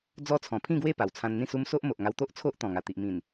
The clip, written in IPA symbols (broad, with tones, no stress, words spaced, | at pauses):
d͡zɔ˦ t͡sʰɔ̃˨˩pʰĩ˥˧ɡwe˥˧ pa˨˩wt͡sʰã˧n n̪ĩ˥˧su˦m so˦ʔmo˨ʔŋa˧w t̪o˦ʔt͡sʰo˦ʔ t̪ɔ̃˨˩ŋa˨˩t̪i˨ʔmĩ˨˩n